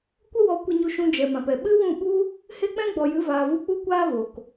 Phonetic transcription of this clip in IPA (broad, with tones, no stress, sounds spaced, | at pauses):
kʷ ə˦ w ɔ˧ kʷ ə˦˨ ɲ u˧ ʃ ũ˧ d͡ʒ ɛ˨ m ã˨ p ɛ˨ ɓ ɨ˦ w ũ˦˨ ɓ u˦ | h e˦ k͡p ɛ̃˦ ɡ͡b ɔ˨ j ɨ˨˦ v aː˨ v u˧ k͡p u˦ kʷ aː˦ v o˨ k